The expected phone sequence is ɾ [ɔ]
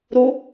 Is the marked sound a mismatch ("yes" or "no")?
yes